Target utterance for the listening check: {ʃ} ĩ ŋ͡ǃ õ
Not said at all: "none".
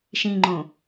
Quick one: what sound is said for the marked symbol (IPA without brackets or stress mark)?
ʃ